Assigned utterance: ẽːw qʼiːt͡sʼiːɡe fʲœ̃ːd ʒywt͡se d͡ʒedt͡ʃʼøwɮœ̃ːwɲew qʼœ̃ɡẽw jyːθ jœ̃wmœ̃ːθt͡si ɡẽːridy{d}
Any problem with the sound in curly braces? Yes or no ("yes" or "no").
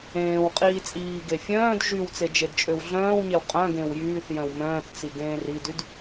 no